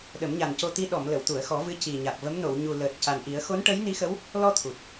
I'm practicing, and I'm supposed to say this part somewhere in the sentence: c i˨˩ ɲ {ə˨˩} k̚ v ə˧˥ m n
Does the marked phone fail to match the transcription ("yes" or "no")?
yes